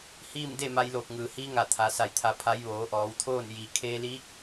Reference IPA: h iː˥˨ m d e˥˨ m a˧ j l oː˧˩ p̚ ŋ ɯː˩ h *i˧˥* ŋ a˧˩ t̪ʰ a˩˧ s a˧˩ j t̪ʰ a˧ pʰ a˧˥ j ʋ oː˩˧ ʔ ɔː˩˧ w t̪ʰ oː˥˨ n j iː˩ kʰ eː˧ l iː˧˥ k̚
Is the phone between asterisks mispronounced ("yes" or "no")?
no